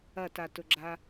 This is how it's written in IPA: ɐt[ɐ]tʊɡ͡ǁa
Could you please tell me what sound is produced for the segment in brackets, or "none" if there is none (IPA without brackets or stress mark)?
a